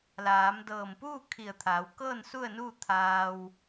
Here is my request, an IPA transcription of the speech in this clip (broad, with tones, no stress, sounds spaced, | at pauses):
l aː˩˧ m d ɤː˧˩ m p uː˥˨ kʰ i˧˩ ə̯ t̪ʰ aː˩˧ w k ɤː˥˨ n s u˥˨ ə̯ n uː˥˨ t̪ʰ aː˧ w